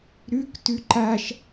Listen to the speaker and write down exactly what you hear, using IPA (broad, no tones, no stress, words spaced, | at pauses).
ɾʉktʉ ǃaʃ